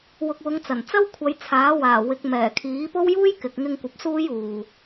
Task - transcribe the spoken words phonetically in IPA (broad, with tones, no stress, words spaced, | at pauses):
wʊ˨k̚wʊ˨˧ŋt͡sɐ˨˩n t͡sɐ˥wkʷʰɐ˨˧jt͡sʰaː˨˥waː˨˩ wɪ˨˥k̚ mɛː˨˩kʰiː˨˥po˥w juː˥jkɪ˨k̚ŋɪ˧ŋkʷɐ˨p̚ suː˥juː˨